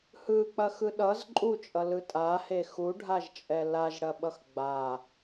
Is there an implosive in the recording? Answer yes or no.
yes